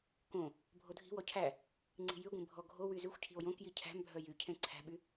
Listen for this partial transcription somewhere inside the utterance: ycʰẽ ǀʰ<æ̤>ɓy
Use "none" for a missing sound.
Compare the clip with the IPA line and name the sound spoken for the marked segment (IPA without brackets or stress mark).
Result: æ̤